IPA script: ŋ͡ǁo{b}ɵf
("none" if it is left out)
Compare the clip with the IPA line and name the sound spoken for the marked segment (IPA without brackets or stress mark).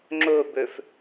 b